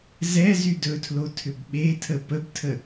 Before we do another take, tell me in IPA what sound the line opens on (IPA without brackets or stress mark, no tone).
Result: z